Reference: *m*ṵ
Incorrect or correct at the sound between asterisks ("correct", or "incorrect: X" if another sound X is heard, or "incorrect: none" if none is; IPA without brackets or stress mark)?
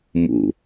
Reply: correct